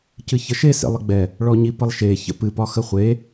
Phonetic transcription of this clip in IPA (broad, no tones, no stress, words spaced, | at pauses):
cɨçəʃe sḛlˠəɡ͡bɛ | ɭɔɲipəlˠʃe çə̰pɨ pɒxəχʷe